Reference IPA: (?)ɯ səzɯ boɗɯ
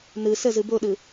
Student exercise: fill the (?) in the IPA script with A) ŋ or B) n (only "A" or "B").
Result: B